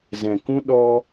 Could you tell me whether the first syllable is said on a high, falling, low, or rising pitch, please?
low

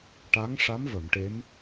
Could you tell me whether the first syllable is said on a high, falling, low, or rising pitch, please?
rising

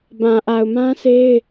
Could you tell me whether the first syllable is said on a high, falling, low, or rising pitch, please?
low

